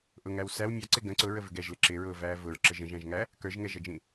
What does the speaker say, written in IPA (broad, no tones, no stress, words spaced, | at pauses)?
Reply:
ʔʊŋæw sæw mʲɑǀɪ ɡə̃ ǀʊɹəvɪ ɡɛʒlɪ ǁɪɹʊːvæː vʊɹǁə ʒə̃ʒæ̃ʒŋæ | kə˞ʒŋɛʒʌd͡ʒĩ